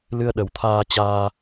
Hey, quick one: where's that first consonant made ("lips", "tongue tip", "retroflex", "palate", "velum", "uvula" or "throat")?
tongue tip